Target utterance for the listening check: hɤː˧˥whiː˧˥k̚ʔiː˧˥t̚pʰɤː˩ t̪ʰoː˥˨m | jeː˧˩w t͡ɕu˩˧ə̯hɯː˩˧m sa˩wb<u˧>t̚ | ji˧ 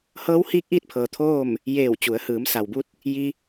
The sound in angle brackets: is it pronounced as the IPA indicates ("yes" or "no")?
yes